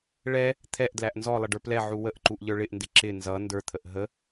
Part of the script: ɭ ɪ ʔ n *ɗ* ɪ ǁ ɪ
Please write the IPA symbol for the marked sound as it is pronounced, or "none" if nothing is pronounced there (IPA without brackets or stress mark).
d